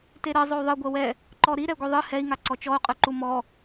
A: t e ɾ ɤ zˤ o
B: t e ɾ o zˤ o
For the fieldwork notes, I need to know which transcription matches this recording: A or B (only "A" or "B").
A